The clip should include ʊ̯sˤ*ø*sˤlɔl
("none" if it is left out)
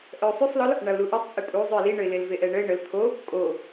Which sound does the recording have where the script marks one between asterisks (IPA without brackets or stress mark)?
y